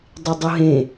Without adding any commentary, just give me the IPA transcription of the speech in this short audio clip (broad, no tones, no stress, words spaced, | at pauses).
dˤɪdˤʊɦẽ